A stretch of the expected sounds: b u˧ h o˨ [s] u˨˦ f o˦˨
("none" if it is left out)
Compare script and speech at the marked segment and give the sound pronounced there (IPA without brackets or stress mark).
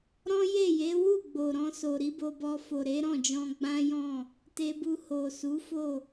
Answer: s